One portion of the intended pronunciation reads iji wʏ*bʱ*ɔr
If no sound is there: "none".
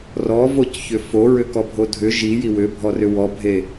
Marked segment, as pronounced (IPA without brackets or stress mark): bʱ